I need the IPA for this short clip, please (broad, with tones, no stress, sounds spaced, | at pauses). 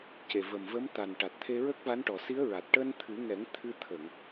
c e˨˩ v ə˨˩ m v ə˧˥ m t̪ a˨˩ n ʈ a˨˩ t̚ t̪ʰ e˧ ɹ ə˦˥ k̚ v a˧˥ n ʈ ɔ˨˩ s i˧˥ ə̯ ɹ a˨˩ t̚ ʈ əː˧ n t̪ʰ ɨ˨˩˦ ŋ ɛ˨˩˦ ŋ t̪ʰ ɨ˧ t̪ʰ ə˨˩˨ ŋ